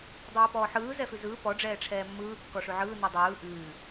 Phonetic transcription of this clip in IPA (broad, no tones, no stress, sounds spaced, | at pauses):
dˤ ɛː p ɔː ħ ɯː z ɛ f ʉ z ɯː p ɔ ɖ͡ʐ ɛː ʈ͡ʂʰ ɛː mː ɯː kː ɔ ʂ ʉ ʕ ɯː n i dˤ ɯː ʔ ʉː